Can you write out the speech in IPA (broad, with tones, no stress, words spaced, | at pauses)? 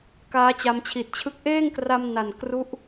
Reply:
kaː˦˥t͡ɕa˧mt͡ɕʰi˨˩t̚t͡ɕʰɯ˦˥k̚ ʔeː˥˩ŋkra˧m na˨˩nkru˦˥ʔ